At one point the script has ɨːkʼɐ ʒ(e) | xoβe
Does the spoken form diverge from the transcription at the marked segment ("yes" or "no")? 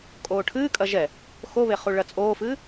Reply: yes